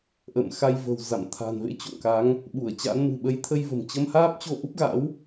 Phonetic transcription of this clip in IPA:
ʔə̰ː˧˨mxa˧j və̤˨˩wza̰˧˨mt̪ʰa̤˨˩n vḛ˧˥t͡ɕo̰˧˨ŋka˨˦ŋ | ɓu˧˩ə̯t͡ɕa̰˧˥nmɨ̤˨˩ ɓə˨˦jt̪ʰə˧jvə̤˨˩m t͡ɕə˧mhaː˦˥p̚t͡ɕo˧ ʔu˦˥p̚ɣa̰˧˥w

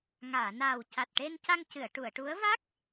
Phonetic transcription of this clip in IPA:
ŋaː˨˩˨naː˨˩w ca˨˩t̚ʈe˧nca˧ŋcɨ˨˩˨ə̯ ʈu˨˩˨ə̯ʈu˧˥ə̯ va˦˥k̚

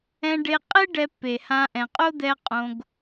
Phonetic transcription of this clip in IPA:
ɛ̃˧ɖe˧qʼe˦ ɖɛ˧pːe˨hã˧ ʔɛ̃˨qʼo˦d̪ɛ˧ qʼõ˧ɡ

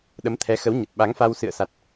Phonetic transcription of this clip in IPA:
ɗə˨˦mt̪ʰɛ˨˦xə˨˦w ɲə˨˩t̚ ɓa˨˦ŋfa˧w sɨ̰˧˨ə̯sa˨˩t̚

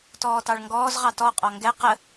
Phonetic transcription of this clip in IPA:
tɔːtɑɭŋɡɔːz ʁɑtɔ qʼɔŋɡɛ qə

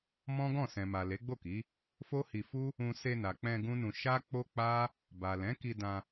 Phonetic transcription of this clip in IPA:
mɔ̃˦ɡɔ̃˦˨sɛ̃˨ma˨ le˨˦ɡ͡bo˦˨ki˨˦ | fo˦hi˧fu˦ | ũ˧ se˧na˨k͡pɛ̃˧ ɡũ˦nũ˧ ʃa˦k͡po˦k͡pa˦ | ba˨lɛ̃˨˦ki˧dã˧

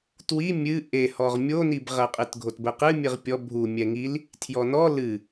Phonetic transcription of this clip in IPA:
twi mʲɨ ʔehɔʁ mʲonibʁɐ qʼɨtɡʱotbɘqɨ mʲɨʁpʲɔ bʱu mʲɛŋil | tʰjɔnɔ lɨ

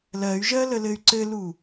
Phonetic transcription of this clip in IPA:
lɜy̯ʒɜləlɘy̯ ǀɘlu

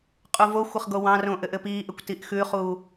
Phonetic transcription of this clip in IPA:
qʼuvoxʷɘχ ɡowɑ̃rõ ʔɘʔɘpiːʔɘkʷ tiʔxʉχuː

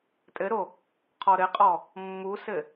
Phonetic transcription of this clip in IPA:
tʼɘɾo | qʰɔɾɘqʼɔ | mːusɘ

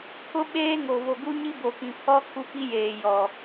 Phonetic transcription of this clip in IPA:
pʰʊ˦ɓeː˦ŋo˨ βo˨ɡu˦ɲi˦bo˨ kĩ˨pʰɔ˦ kʰu˦pi˦jeː˨ jɔ˨

